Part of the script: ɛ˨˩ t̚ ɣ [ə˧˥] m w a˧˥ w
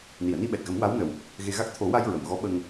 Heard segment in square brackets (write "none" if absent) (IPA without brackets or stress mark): ə˨˩˦